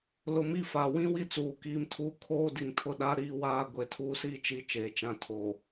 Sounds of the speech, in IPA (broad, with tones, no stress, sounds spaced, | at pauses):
l ʊ˨ m i˦˨ f a˨ w ĩ˦ w i˦ t͡s uː˨ k iː˦ m tʰ uː˦ kʰ oː˦ d i˨ ŋ tʰ ʊ˦˨ ɗ a˦ ɾ iː˦ w aː˦ ɡʷ e˨ tʰ uː˦ s iː˦ t͡ʃ i˦ t͡ʃ eː˨ t͡ʃ ã˦˨ tʰ oː˨